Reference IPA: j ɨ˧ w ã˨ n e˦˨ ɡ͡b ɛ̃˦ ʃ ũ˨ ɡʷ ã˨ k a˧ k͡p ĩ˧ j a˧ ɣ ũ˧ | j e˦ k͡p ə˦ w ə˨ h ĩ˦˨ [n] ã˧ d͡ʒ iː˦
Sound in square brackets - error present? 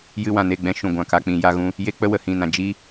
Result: no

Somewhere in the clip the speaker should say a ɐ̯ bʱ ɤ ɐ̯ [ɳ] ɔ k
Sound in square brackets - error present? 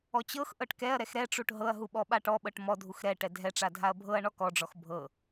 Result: no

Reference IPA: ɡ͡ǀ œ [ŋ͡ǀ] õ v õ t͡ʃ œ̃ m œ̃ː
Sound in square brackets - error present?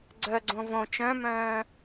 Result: yes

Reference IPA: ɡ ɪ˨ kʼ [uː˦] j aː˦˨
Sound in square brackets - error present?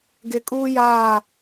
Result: no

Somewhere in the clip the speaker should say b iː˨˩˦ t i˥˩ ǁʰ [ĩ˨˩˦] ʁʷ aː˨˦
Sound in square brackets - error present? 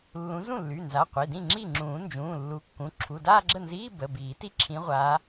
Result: yes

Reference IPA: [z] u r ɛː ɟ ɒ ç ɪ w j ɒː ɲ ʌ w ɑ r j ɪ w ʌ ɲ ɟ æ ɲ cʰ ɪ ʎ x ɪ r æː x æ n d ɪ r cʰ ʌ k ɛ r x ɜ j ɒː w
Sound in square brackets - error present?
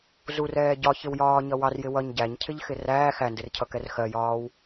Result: no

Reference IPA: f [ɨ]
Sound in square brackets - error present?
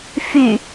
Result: yes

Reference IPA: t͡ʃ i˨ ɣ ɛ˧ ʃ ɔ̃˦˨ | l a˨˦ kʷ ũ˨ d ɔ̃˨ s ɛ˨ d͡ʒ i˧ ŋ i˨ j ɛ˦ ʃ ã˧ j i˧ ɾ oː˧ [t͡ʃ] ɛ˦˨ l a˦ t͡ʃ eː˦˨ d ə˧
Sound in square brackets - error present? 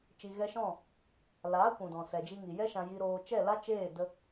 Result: no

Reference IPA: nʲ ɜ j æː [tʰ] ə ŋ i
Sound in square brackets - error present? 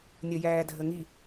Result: yes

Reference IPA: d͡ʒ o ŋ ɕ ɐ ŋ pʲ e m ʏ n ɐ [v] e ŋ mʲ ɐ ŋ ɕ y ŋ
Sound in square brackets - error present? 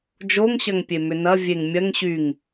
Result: yes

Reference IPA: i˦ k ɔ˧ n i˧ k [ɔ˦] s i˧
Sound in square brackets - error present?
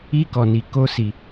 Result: yes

